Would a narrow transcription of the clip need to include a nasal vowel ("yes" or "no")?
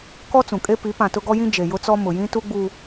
yes